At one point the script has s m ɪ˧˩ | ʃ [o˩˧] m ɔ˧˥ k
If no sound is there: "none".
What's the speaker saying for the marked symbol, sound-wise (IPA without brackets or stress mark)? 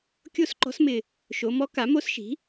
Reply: o˩˧